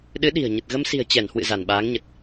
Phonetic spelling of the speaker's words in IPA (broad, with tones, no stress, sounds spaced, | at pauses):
ɗ ɨ˨˦ ɗ i̤˨˩ ə̯ ɲ ə˨˩ t̚ ɣ ə˧ m s i̤˨˩ ə̯ t͡ɕ ɛ˧˩ n h w ɨ̰˧˨ z a˧˩ n ɓ aː˨˦ ŋ ɲ ə˨˩ t̚